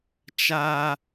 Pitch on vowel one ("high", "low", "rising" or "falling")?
high